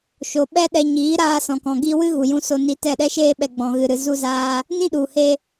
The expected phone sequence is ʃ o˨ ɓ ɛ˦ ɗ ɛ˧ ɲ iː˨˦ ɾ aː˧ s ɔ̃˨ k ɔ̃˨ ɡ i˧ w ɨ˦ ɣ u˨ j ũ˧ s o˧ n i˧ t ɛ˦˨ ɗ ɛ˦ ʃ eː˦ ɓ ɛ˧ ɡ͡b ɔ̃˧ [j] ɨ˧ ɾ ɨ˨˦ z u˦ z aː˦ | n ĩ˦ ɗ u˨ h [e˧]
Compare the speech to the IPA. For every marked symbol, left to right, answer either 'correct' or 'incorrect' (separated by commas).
incorrect, correct